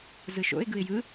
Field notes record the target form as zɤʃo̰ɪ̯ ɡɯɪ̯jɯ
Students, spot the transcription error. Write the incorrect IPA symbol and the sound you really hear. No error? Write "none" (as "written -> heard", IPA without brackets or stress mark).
ɤ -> ɯ